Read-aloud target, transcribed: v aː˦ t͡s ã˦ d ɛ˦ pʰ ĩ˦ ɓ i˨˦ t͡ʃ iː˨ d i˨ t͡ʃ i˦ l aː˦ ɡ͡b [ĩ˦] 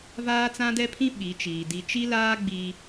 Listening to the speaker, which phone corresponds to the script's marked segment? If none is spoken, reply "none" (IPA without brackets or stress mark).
i˦